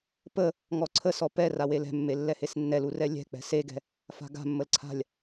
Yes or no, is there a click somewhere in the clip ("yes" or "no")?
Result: yes